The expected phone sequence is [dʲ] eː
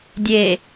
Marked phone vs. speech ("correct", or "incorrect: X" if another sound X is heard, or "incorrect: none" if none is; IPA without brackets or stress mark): correct